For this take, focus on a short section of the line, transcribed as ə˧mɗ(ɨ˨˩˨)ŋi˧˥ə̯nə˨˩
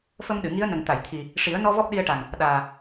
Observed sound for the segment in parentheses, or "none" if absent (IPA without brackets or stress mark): ɨ˨˩˨